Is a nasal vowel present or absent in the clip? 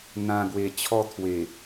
present